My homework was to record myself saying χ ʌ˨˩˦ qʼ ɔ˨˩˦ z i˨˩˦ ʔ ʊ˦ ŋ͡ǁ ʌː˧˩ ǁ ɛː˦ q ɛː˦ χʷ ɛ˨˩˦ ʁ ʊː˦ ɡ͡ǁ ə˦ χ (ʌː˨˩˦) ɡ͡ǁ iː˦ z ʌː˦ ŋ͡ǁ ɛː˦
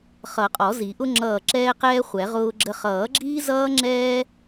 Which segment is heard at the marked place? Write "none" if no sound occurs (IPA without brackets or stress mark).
ʌː˨˩˦